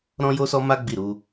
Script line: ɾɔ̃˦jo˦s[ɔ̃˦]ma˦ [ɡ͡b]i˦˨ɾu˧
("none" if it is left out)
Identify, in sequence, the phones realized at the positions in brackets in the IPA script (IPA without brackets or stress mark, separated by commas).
ɔ˦, ɡ͡b